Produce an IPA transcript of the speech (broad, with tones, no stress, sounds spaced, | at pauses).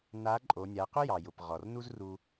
n a˧˥ ǃʼ o˧˥ nʲ a˧˥ q ʊ˥ j ɑ˩ j ʊ˩ p ʁ ɔ˩ r n u˥ z r u˧